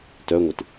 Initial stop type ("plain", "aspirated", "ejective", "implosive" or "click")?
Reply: plain